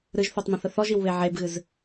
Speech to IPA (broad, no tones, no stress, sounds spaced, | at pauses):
ɾ ɨ ʒ θ o tˤ m ə̃ θ ə θ ɔ ʒ i w β e ʕ e b ɣ ɨ z